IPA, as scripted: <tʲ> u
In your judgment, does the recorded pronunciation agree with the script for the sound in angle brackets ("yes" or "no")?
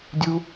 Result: no